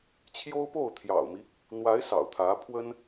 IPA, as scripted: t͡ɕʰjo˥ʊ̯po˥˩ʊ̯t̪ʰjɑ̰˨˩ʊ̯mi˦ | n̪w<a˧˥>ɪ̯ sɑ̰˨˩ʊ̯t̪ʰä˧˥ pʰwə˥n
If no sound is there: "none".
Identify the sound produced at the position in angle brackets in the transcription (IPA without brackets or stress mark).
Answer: a˧˥